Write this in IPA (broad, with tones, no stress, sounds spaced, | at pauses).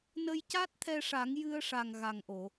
n ə˧ j c a˦˥ t̚ t̪ʰ ɛ˧ ʂ a˨˩˦ ŋ j ɨ˧ ə̯ ʂ a˨˩ ŋ ɣ a˨˩ ŋ ʔ o˨˩˨